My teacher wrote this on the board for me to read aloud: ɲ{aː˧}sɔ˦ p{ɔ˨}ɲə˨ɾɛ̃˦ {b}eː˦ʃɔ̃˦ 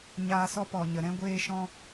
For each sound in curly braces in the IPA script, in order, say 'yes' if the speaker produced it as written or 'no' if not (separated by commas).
yes, yes, no